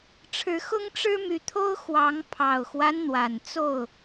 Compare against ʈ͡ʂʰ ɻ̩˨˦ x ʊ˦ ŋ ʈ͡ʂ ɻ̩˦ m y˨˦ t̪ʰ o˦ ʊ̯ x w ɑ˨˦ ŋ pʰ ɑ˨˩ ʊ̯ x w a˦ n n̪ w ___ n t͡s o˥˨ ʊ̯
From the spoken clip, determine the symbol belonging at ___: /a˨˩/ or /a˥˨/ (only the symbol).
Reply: a˨˩